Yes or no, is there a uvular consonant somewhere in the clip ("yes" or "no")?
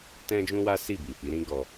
no